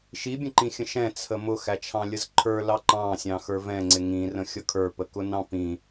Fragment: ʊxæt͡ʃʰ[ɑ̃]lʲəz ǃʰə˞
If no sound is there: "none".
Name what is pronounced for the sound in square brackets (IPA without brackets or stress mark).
ɑ̃